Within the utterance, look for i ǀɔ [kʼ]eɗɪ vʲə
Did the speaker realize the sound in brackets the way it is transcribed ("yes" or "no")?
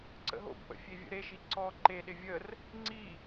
no